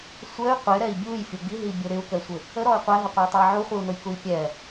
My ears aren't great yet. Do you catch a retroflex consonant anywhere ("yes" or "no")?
no